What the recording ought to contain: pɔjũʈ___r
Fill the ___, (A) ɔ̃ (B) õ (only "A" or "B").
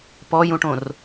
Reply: B